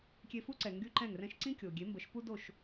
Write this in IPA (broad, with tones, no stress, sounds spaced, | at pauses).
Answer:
kʲ e˧ f u˥ ǀ ɛ˩ ŋ ɡ y˥ ǃ ɛ̃˥˩ ŋ r ɛ̃˥ ʃ ǀ ĩ˥ kʲ o˩ ɡʲ e˩˥ m b ə˩˥ ʃ p u˥ d o˥˩ ʃ